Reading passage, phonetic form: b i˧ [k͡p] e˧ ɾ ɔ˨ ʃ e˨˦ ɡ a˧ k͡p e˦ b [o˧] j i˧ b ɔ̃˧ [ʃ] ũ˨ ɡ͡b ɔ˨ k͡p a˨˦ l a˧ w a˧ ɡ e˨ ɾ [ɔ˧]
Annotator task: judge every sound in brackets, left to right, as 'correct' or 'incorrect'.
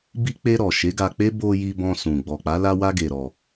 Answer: correct, correct, incorrect: s, correct

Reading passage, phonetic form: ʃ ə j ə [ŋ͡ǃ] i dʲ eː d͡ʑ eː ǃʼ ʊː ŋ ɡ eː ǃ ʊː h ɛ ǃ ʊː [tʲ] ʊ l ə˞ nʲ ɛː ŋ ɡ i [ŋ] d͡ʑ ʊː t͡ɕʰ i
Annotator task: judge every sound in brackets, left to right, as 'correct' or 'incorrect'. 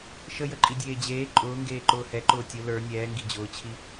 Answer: incorrect: ǃʼ, correct, incorrect: none

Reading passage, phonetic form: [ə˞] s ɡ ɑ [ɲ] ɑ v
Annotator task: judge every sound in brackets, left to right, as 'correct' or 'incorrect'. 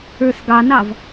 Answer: correct, incorrect: n

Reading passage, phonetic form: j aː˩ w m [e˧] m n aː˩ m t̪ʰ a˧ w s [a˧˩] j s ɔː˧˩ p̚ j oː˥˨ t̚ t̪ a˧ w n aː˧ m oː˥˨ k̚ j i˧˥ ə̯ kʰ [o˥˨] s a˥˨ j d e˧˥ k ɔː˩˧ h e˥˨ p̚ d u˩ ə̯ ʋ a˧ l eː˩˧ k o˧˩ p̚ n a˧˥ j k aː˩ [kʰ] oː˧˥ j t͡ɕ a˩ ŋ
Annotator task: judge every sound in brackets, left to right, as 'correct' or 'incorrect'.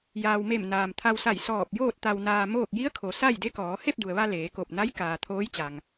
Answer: incorrect: e˧˩, correct, incorrect: o˩, incorrect: t̪ʰ

